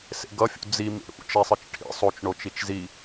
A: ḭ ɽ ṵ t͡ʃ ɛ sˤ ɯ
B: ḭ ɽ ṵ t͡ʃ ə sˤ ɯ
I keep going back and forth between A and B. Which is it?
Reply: A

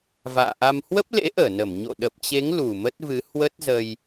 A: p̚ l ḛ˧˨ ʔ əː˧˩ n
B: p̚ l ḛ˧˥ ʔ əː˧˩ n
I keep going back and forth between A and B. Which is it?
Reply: B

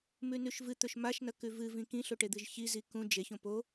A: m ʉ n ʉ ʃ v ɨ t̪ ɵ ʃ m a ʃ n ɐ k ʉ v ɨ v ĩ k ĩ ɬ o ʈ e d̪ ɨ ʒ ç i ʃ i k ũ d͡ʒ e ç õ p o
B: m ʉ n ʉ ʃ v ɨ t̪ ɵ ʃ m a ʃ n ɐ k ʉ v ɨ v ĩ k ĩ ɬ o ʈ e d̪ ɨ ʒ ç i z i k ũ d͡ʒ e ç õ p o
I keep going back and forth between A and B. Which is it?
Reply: B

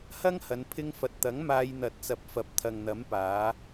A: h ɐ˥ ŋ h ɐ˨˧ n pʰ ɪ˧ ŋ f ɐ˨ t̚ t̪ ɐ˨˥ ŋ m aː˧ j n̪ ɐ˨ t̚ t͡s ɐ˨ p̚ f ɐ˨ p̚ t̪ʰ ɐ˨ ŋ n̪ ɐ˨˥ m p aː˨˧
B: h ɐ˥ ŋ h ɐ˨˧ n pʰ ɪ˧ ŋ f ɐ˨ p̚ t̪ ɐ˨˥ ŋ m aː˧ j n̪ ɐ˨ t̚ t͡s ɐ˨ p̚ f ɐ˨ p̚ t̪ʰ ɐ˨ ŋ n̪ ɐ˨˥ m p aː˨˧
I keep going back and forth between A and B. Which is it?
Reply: A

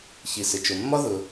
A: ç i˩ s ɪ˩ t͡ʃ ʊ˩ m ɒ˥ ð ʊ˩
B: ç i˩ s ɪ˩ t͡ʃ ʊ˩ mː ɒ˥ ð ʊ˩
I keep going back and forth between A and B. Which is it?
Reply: B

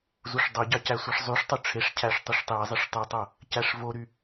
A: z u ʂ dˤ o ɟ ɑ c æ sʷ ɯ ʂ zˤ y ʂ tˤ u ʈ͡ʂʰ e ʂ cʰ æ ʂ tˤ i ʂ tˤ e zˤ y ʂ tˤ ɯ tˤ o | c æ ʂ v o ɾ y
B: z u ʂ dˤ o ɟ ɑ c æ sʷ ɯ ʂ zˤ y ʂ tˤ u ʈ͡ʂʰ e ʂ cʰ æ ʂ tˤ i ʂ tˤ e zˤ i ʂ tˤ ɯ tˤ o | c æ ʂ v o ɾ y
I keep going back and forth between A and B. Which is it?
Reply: B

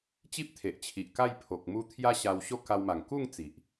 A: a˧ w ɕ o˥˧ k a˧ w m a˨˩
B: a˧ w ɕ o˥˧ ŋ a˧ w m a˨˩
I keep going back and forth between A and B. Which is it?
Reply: A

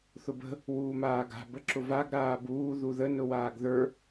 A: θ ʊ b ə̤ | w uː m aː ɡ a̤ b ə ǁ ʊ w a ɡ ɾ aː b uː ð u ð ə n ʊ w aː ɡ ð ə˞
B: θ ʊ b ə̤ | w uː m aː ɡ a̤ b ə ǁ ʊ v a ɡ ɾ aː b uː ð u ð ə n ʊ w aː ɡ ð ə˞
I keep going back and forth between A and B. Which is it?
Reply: B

